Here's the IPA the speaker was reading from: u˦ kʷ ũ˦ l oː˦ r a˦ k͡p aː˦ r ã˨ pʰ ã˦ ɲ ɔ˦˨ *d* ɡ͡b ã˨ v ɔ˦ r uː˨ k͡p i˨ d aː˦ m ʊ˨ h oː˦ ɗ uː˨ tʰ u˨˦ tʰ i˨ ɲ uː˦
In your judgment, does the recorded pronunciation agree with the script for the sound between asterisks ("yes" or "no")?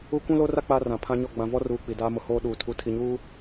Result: no